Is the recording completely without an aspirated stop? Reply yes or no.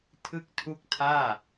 no